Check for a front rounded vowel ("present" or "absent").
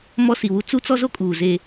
absent